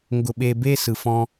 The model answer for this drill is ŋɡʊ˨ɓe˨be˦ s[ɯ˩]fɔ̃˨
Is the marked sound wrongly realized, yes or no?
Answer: no